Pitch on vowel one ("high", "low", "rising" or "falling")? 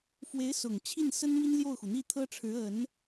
rising